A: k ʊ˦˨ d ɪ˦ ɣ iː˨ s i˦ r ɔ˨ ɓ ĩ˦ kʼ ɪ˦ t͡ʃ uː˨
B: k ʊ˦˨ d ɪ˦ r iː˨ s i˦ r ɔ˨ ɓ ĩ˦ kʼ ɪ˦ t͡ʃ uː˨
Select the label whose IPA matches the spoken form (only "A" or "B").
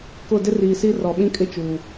B